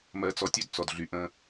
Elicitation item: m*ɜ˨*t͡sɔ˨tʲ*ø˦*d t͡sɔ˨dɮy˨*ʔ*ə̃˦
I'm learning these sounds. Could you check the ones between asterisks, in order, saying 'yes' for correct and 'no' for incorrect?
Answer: yes, yes, yes

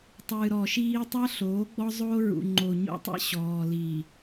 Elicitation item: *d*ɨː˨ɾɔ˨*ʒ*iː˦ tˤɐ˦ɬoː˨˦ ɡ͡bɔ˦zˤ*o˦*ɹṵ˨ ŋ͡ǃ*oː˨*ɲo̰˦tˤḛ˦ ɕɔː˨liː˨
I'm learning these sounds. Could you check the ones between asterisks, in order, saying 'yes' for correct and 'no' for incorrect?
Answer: no, no, no, no

